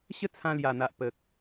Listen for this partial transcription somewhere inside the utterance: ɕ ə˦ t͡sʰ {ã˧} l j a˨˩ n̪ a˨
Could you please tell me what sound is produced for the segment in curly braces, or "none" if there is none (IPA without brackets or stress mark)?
ã˧